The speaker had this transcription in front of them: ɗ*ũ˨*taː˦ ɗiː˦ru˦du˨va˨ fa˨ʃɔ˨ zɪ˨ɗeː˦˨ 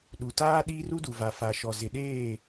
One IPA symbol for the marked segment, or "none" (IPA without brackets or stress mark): u˨